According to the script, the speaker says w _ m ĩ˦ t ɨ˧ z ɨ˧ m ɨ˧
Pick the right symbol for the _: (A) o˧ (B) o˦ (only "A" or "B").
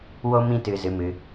B